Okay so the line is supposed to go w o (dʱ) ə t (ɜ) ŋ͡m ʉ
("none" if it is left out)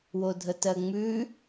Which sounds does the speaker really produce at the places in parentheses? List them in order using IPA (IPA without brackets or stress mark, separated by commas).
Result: dʱ, ɜ